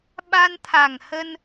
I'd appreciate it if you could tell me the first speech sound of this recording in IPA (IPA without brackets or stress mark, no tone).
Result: ɓ